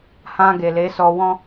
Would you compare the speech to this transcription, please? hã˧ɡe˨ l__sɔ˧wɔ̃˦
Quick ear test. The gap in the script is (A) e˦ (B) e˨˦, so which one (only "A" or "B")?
B